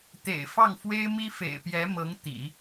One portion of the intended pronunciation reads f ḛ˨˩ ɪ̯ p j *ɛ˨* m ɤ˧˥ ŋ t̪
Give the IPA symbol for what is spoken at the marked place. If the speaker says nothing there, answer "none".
ɛ˧˥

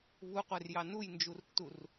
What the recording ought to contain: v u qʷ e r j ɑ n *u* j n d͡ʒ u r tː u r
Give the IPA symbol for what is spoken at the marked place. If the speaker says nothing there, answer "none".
u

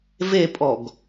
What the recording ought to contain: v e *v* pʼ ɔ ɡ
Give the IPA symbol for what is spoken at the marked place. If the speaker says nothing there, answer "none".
none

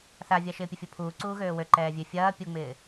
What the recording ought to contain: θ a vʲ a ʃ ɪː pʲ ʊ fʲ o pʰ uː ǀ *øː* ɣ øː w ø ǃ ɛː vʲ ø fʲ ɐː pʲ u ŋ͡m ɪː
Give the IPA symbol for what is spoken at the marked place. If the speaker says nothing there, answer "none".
uː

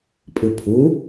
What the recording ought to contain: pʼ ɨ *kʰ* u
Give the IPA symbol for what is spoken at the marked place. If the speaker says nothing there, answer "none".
pʰ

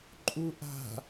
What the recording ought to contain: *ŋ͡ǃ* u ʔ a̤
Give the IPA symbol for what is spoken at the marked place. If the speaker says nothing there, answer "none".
ǃʼ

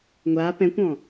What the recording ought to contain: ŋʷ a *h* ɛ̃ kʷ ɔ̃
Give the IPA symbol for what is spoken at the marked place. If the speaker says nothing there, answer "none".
p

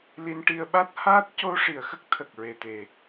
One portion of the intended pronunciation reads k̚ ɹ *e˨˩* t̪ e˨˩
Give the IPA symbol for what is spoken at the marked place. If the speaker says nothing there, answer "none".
e˨˩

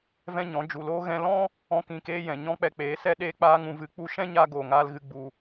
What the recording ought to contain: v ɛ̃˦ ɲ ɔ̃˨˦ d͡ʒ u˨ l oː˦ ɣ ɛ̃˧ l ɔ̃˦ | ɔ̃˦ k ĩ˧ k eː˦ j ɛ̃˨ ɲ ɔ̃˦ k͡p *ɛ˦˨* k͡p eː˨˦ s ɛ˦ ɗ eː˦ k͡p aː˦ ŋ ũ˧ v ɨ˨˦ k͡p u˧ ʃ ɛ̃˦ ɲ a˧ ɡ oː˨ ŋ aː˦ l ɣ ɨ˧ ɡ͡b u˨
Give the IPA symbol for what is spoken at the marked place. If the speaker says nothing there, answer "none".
ɛ˧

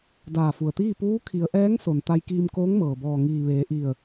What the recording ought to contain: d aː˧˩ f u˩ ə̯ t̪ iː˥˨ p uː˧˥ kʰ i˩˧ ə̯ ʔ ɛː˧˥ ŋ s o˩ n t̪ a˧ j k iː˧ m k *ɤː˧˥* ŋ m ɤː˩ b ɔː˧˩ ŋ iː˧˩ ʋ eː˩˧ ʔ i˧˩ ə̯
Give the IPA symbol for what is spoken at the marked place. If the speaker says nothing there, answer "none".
oː˧˥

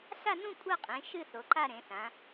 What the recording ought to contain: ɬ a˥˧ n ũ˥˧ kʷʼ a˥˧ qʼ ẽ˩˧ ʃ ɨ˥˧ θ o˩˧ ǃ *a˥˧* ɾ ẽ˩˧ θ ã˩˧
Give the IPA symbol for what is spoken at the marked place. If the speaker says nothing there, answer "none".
a˥˧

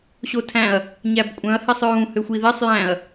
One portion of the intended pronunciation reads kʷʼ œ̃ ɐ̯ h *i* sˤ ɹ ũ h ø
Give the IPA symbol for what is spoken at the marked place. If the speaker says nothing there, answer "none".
i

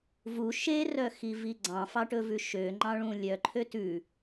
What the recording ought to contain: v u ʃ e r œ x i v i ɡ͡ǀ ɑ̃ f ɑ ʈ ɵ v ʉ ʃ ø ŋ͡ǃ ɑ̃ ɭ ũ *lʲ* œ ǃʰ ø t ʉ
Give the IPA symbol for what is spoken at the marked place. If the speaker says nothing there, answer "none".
lʲ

